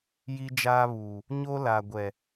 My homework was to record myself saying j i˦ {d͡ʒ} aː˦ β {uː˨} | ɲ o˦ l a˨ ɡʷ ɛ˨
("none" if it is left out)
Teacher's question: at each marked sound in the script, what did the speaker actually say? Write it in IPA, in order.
d͡ʒ, uː˨

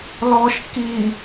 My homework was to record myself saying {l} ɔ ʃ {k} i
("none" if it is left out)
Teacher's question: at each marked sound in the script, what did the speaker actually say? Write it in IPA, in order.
l, k

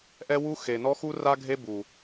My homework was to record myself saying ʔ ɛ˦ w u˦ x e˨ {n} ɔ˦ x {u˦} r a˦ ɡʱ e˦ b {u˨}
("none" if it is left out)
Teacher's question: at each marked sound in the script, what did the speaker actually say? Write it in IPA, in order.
n, u˦, u˨

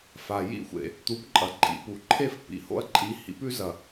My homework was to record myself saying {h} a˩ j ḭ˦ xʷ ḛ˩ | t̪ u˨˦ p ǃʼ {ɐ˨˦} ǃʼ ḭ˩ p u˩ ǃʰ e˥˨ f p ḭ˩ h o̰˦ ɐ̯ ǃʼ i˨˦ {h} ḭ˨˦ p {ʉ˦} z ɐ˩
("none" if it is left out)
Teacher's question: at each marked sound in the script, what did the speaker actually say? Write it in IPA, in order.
f, ɐ˩, h, ʉ˦

